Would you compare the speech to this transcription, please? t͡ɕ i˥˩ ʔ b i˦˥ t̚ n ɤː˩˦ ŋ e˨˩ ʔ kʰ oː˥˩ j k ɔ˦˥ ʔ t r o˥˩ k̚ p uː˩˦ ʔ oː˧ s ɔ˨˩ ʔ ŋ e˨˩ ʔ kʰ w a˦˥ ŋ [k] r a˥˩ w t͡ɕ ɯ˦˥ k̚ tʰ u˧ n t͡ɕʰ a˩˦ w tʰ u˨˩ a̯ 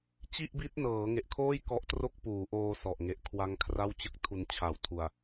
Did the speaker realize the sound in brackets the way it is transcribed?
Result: no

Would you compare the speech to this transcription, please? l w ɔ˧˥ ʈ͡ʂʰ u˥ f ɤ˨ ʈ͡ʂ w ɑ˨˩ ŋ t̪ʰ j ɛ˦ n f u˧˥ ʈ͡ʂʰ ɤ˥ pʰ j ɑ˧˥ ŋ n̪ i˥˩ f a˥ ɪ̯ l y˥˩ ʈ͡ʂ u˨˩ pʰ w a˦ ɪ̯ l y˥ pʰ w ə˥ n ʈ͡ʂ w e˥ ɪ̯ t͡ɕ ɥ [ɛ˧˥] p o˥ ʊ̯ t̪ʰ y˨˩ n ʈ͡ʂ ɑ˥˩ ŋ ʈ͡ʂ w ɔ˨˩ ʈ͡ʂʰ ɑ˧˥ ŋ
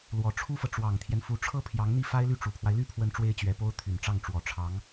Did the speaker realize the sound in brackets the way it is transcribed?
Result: yes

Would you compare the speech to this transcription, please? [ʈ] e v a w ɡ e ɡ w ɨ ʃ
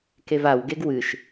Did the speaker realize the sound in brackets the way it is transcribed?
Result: no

